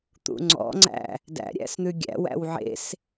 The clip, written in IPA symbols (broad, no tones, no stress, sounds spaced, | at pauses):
t̪ ṵ ŋ͡ǀ ɔ̰ ŋ͡ǀ æ̰ | d æ̰ ɾʲ æ̰ s n̪ ʉ ɡʲ æ̰ w æ̰ w ʕ ḛ s